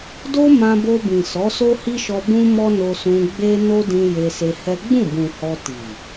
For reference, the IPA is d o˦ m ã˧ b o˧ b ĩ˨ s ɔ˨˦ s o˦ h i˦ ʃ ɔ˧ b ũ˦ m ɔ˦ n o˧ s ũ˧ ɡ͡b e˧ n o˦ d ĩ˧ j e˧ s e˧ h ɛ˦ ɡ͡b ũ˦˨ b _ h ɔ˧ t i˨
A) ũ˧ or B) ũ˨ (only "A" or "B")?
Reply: B